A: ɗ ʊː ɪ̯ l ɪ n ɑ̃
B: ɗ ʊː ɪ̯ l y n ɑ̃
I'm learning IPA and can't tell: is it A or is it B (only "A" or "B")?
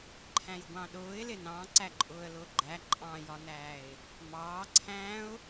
A